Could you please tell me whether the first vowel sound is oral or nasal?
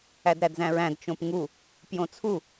oral